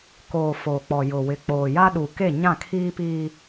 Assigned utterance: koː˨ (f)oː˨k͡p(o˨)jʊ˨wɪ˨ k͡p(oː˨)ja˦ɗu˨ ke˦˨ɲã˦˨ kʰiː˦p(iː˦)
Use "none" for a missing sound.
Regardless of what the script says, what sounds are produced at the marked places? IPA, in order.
f, ɔ˨, oː˨, iː˦

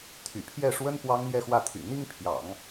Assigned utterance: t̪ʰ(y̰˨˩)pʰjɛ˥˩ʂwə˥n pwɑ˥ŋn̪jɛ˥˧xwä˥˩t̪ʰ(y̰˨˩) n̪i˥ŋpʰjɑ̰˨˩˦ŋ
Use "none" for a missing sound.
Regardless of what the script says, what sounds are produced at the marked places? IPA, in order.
y̰˨˩, y̰˨˩

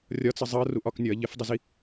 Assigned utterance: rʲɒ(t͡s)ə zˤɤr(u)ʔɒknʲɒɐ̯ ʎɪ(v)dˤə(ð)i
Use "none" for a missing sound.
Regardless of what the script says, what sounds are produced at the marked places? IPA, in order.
t͡s, u, f, z

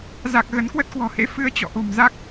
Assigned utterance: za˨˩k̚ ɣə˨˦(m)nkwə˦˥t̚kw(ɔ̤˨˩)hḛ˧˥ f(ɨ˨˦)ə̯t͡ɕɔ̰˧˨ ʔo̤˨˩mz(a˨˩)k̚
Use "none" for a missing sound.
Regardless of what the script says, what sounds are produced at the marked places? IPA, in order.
none, ɔ̤˨˩, ɨ˧, a˦˥

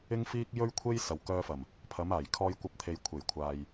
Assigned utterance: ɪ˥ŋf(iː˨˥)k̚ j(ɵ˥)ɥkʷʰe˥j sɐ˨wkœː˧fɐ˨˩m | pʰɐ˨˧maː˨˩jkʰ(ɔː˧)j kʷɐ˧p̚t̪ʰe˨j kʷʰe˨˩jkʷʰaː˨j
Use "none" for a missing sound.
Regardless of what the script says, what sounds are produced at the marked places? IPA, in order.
iː˥, ɵ˥, ɔː˧

